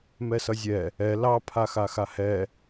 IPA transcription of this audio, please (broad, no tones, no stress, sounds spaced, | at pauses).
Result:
m ɛ s ʌ zʲ ɛ | ɛ l ɑ pʰ a x a x a h ɛ